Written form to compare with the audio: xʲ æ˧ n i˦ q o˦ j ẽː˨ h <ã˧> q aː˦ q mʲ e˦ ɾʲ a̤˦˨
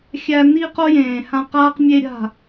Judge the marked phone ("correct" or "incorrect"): correct